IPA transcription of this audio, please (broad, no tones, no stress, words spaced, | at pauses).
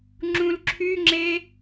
ŋ͡ǁũlǁʰyŋ͡ǁe